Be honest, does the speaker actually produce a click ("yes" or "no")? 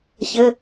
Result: no